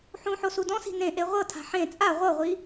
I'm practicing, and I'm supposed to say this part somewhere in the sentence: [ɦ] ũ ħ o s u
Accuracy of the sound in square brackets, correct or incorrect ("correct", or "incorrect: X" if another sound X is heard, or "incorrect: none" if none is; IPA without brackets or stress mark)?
incorrect: ħ